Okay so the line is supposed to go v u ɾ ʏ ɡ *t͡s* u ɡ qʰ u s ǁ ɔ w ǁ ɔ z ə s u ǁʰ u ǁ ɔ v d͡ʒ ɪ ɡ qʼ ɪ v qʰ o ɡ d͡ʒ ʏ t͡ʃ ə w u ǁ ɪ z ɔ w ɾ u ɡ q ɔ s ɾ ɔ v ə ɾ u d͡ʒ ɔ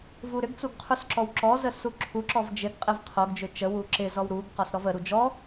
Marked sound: correct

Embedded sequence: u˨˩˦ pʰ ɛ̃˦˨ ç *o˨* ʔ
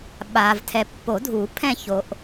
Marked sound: correct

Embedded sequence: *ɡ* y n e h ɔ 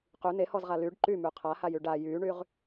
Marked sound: incorrect: q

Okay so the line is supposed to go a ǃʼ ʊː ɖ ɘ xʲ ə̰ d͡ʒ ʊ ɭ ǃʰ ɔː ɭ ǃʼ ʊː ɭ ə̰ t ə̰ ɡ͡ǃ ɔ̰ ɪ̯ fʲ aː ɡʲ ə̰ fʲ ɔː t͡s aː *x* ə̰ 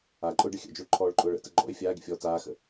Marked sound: correct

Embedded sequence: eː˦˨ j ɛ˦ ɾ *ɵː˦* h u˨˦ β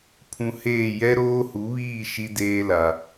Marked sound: incorrect: oː˦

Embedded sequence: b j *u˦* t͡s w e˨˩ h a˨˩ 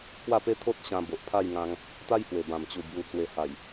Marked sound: incorrect: u˨˩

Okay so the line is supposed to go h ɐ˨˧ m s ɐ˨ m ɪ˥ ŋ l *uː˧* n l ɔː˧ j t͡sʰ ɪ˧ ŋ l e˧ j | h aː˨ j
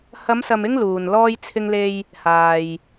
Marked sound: incorrect: uː˨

